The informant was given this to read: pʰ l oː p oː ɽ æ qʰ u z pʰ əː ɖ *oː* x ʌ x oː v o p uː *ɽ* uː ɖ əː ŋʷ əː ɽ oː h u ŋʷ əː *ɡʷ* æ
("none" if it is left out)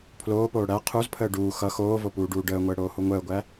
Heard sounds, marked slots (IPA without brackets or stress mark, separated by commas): uː, ɖ, ɡʷ